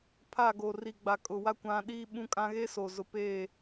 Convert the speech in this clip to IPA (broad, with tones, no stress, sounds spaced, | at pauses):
pʰ a˦˨ ɡ o˨ r i˨ ɡ͡b a˨ kʼ ʊ˨ w a˦ kʷ ã˦ ɗ iː˦ ɓ ũ˦ kʼ ã˦ ɣ e˦ s o˨ z ʊ˨ p eː˦˨